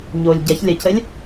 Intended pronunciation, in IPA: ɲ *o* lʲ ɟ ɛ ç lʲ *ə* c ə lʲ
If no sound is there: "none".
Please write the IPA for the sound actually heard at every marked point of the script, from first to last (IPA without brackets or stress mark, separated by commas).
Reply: o, ə